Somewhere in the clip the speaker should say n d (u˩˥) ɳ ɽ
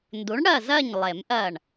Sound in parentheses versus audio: correct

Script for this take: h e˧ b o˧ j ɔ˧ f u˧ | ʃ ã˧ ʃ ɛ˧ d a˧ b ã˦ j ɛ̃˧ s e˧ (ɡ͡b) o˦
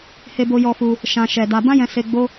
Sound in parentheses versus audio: correct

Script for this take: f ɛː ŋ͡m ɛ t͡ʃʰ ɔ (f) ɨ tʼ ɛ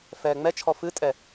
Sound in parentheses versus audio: correct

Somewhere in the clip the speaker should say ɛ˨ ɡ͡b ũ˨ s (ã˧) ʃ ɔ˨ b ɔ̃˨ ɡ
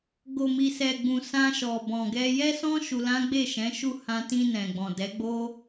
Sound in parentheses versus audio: correct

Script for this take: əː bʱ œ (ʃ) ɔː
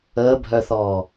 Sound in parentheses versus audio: incorrect: θ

